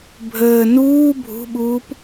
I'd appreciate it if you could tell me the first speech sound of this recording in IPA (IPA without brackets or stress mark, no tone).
bʱ